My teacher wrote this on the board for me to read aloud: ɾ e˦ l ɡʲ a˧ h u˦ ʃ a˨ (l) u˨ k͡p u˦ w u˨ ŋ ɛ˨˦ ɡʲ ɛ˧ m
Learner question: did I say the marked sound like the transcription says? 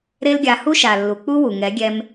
no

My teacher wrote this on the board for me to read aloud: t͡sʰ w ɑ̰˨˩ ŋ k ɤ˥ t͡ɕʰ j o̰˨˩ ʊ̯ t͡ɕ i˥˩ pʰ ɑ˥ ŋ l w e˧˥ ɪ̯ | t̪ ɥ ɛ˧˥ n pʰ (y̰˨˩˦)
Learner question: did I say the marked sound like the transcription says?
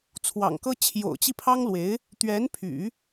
yes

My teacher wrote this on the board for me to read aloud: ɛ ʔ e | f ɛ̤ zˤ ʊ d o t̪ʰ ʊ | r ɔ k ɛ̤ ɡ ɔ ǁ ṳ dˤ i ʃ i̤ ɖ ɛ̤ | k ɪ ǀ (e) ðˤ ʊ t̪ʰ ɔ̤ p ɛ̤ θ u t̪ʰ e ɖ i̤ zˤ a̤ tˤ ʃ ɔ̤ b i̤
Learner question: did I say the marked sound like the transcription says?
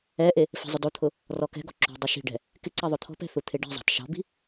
no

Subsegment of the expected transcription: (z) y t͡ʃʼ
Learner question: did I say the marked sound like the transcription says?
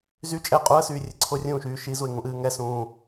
yes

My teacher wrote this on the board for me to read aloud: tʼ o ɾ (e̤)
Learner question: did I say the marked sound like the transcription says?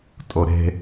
yes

